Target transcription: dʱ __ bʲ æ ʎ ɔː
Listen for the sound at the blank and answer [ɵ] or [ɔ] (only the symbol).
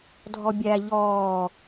ɔ